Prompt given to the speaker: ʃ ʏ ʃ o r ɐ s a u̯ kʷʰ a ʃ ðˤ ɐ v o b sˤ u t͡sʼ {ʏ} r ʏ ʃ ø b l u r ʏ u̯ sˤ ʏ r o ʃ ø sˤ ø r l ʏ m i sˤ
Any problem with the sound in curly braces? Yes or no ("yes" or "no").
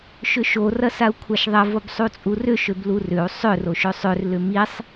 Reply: yes